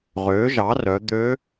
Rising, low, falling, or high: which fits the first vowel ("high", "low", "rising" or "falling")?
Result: rising